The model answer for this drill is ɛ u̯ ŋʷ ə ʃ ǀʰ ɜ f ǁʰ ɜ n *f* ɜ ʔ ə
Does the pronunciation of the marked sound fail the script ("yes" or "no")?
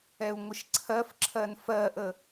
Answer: no